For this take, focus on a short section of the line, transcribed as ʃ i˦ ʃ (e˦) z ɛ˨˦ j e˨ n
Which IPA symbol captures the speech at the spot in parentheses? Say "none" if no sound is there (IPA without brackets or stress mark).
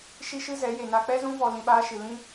ɨ˦